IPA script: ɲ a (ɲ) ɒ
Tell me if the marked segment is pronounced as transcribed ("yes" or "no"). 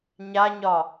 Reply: yes